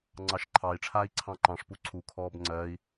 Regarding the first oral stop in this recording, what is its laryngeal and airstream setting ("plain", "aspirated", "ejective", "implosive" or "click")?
click